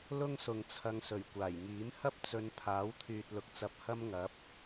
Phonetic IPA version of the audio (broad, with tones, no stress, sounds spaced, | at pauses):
l ʊ˥ ŋ s ʊ˨ ŋ t͡sʰ ɐ˧ ŋ s ɵ˨˩ ɥ kʷ aː˨˩ j ŋ iː˨˥ m h ɐ˥ p̚ t͡s ɵ˨˧ n pʰ aː˨˥ w t̪ʰ yː˨ t̚ l ʊ˨ k̚ t͡s ɐ˧ p̚ h ɐ˥ m ŋ ɐ˨˥ p̚